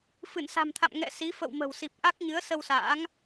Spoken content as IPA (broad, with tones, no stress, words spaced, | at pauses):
fɨ˧˩nsa̤˨˩mt̪ʰa̰˧˨m ŋɛ̰˧˨ si˨˦ fə̰˧˨wmə̤˨˩wsi˨˩p̚ ʔa˦˥k̚ɲɨ˨˦ə̯ sə˧wsa̰ː˧˥ŋ